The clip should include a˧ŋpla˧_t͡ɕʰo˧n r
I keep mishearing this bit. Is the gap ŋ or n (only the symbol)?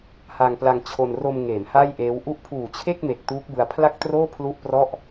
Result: ŋ